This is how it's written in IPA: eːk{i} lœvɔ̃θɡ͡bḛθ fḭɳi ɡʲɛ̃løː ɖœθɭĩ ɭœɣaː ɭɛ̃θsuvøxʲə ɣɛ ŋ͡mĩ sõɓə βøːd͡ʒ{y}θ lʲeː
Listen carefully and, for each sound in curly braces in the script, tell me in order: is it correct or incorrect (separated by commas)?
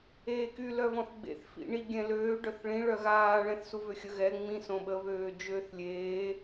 incorrect, incorrect